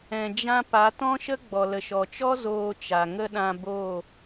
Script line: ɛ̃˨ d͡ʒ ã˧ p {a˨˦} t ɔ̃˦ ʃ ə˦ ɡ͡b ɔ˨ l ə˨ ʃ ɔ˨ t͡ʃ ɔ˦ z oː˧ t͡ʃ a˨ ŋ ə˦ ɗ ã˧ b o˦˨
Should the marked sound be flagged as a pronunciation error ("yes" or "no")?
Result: no